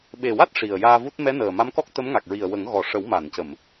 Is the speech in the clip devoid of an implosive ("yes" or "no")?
no